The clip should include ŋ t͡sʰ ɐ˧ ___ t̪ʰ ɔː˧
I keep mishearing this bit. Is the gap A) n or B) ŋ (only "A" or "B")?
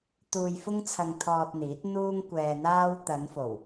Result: B